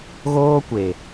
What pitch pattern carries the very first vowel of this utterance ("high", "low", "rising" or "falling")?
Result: high